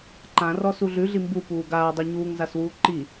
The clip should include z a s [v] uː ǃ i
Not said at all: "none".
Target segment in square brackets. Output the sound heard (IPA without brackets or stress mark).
w